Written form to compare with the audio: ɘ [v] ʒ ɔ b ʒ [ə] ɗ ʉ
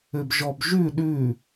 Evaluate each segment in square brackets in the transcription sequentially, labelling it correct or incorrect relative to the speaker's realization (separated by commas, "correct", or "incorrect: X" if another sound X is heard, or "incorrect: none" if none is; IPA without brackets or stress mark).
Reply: incorrect: b, incorrect: ʉ